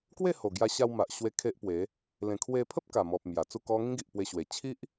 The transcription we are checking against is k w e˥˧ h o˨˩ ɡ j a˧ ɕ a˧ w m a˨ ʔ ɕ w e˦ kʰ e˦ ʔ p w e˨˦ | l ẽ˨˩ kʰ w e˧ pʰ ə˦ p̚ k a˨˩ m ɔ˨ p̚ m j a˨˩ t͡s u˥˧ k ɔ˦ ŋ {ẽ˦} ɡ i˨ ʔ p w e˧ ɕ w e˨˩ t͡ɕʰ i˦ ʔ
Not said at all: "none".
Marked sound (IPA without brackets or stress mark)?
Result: ĩ˦